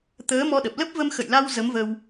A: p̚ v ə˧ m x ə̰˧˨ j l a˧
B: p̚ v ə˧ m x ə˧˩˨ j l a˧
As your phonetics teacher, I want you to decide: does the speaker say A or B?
A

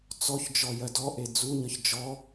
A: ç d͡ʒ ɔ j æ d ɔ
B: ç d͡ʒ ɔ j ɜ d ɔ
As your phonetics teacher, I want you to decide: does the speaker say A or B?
B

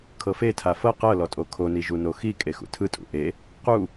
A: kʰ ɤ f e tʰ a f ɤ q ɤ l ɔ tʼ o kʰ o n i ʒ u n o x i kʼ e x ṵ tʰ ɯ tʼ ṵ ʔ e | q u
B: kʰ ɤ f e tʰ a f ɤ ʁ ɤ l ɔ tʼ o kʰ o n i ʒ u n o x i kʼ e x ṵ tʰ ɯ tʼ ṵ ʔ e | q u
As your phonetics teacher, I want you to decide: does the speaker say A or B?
A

